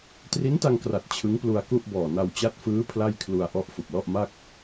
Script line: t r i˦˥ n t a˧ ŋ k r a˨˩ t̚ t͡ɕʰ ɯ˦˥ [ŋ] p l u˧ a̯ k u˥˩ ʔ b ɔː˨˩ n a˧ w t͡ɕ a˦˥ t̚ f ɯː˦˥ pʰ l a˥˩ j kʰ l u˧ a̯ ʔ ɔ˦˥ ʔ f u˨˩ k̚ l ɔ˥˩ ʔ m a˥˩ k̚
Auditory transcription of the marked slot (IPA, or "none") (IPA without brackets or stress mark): ŋ